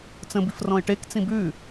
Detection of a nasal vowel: present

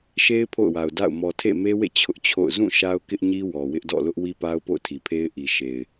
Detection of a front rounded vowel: absent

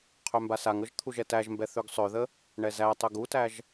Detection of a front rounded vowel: present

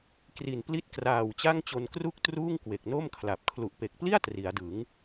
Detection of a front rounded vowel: absent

